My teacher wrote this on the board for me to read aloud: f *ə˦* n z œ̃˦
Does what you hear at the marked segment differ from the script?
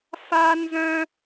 yes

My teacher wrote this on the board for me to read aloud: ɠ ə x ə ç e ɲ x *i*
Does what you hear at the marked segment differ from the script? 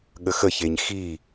no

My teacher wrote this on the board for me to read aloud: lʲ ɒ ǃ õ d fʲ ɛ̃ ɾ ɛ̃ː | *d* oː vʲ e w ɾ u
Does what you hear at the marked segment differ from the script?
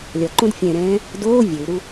no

